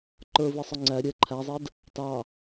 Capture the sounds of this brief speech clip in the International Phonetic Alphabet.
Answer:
ǃ ə˞ v i sˤ ʊ ŋ͡ǀ æ ɾʲ ɛ ǃʰ æ zˤ ɛ d | t ɑ

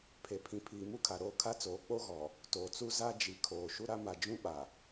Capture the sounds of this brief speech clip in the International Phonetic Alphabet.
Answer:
pʰ e˨ pʰ ĩ˨ pʰ iː˨ m u˦ kʰ a˨ ɾ oː˦˨ kʰ a˦ t͡s oː˨˦ k͡p o˦ ɣ ɔ˨ | t oː˨ t͡s u˦ z a˦ d͡ʒ i˨ kʰ oː˨ ʃ u˦ ɾ a˦ m a˨ d͡ʒ ũ˦ ɓ a˨

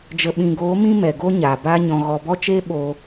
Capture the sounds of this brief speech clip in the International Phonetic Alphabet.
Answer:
d͡ʒ ə˨ ɓ ĩ˨ ɡ oː˨˦ m ĩ˧ m ɛ˨ ɡ o˦ ɲ aː˨ b aː˧ ɲ ɔ̃˨ ɣ ɔ˨ b ɔ˦ t͡ʃ eː˦ ɓ o˧

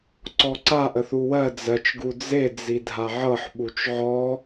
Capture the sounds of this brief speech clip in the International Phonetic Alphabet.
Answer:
ǀ ɔ ǀ a ʔ ə θ u w ɜ d͡z ɜ t͡ʃ ɡ u d͡z e d͡z i dʱ a ʕ ɤ ħ ɓ u t͡ʃ ʕ ɔ

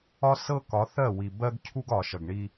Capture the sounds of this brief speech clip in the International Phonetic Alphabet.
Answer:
ɒ˦ s ɤ˦ k ɒ˨˦ θ ɜ˦˨ w i˨ b ɜ˦ ɡ cʰ u˦ ɡ ɒ˨ ʃ ʌ˨ ɡ ɳ i˦

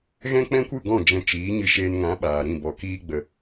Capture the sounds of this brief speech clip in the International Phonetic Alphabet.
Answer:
ɣ ɛ̃˦ k͡p ɛ̃˦ kʷ ɨ˦˨ ɡ ɔ̃˦˨ d͡ʒ ɛ̃˧ t͡ʃ iː˨˦ ɲ ɨ˧ ʃ eː˧ n ŋ ã˨˦ ɓ aː˨ ɾ ĩ˦˨ b ɔ˨ k iː˧ ɡ͡b ə˨

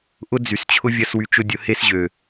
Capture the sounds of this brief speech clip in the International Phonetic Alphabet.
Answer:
ʔ ʊ˦ d͡z y˨ s t͡ɕʰ ʊ˦ vʲ ɐ˦ s w y˧ t͡ʃ ʊ˦ dʲ ʊ˨˦ h e˦ s ʑ ø˨

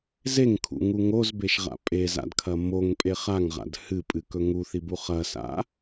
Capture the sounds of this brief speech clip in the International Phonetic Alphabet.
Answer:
z e ŋ kʰ ṵ ŋ u ŋ o z b e ʃ ʁ a̰ pʼ e z a̰ d kʰ ɐ m o ŋ pʼ e χ a ŋ ʁ a̰ d h ɨ pʼ ɨ k ɵ ŋ u θ i b u χ ɐ s a̰

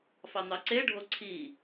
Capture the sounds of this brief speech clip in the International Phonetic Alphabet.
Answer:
f ɑ n̪ ɑ ǀ e ɖʱ o ǀʰ i

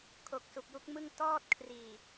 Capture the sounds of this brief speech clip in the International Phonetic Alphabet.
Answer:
kʰ o˨˩ k̚ s u˨˩ k̚ j u˦˥ k̚ m ɯ˥˩ ŋ t ɔː˥˩ t̚ kʰ r iː˨˩

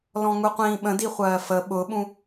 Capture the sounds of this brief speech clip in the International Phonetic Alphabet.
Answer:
l ɔ̃ ŋ u qʷ ĩː ɓ ə̃ d i χʷ ɜː f ə ɓ ʊ ɓ ũ

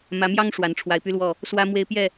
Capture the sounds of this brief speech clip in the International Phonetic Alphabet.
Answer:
m ä˨˦ m j ɑ˦ ŋ ʂ w a˨˦ n ʈ͡ʂʰ w a˨˦ ɪ̯ p y˦ l w ɔ˥˨ | s w ä˦ m w e˦ ɪ̯ p j ɛ˥˨

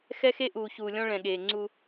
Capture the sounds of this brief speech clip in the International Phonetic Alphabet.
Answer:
x ɛ˦ x e˦ ʔ uː˨ ç uː˨ lʲ ɔ̃˦ ɭ ɛ̃˨ ɠ eː˨ ŋ͡ǀ u˦

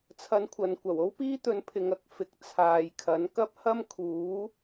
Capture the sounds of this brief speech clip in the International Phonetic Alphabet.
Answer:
t͡sʰ ɐ˧ n kʷʰ ɐ˨ n kʷ ɐ˨˩ w o˥ w p iː˥ t̪ ɵ˨˧ n pʰ ɪ˨ ŋ ɐ˨ k̚ f ɪ˨˥ k̚ t͡sʰ aː˨ j kʰ ɐ˨˥ n k ɐ˥ p̚ h ɐ˥ m kʰ uː˨˥

